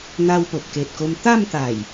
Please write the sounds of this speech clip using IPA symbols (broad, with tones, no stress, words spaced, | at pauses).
n̪a˦wpo˨p̚ ke˨t̚ko˧mt̪a˥˧mt̪a˨˩j